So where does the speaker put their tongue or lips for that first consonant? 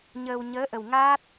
palate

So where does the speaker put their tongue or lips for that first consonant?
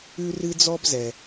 tongue tip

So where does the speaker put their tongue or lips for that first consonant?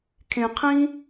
velum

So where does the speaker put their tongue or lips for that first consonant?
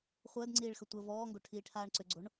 uvula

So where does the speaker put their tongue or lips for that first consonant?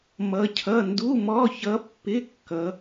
lips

